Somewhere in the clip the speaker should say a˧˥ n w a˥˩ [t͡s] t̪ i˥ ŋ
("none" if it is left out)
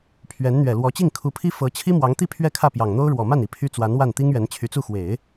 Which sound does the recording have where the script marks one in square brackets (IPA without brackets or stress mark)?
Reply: n